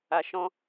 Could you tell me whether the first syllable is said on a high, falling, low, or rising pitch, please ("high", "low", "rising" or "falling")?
low